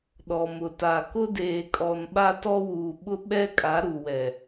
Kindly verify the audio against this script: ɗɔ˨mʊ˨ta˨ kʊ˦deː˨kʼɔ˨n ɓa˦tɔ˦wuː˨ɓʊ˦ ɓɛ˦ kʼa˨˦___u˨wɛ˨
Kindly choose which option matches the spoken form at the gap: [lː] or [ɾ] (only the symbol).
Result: ɾ